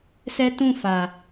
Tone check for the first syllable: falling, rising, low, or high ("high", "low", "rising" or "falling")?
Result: high